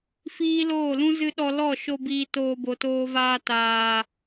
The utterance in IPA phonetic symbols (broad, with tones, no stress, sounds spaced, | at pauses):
f iː˦ l oː˦˨ l ũ˦ z ɨ˧ ɗ ɔ˧ l ɔ˦˨ ʃ o˧ b iː˧ t oː˧ b o˨ t oː˧ v aː˧ t aː˨